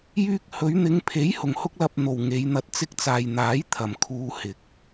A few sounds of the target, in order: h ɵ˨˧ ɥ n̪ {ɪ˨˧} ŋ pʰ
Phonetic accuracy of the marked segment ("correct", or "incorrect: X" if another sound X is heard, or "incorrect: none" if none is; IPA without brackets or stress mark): correct